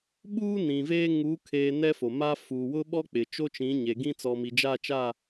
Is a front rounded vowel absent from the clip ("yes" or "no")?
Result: yes